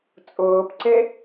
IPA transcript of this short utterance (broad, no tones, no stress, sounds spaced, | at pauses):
t͡sʼ ʊː p ǀ e